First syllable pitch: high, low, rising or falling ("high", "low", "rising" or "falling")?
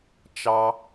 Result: high